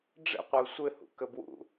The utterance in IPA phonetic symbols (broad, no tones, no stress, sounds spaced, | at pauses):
ɖ͡ʐ ə̰ qʷ ə u̯ sʷ ɘ h ṵ k ə b w ṵ